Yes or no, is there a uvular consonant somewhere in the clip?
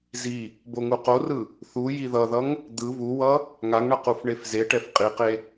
yes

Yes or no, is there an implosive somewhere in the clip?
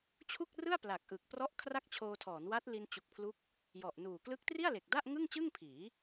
no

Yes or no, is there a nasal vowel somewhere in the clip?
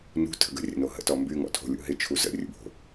no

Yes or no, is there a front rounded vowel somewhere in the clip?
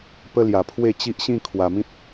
no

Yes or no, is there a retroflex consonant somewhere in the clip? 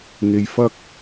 no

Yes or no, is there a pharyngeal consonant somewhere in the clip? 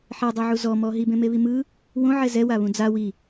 yes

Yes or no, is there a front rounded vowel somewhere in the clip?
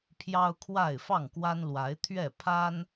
no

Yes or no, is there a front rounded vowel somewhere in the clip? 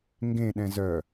yes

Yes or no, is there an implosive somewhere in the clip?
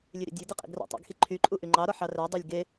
no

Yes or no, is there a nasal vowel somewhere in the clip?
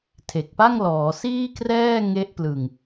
no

